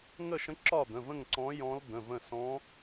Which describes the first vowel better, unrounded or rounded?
unrounded